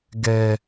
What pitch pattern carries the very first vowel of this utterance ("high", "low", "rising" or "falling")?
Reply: high